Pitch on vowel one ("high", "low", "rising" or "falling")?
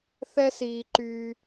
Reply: high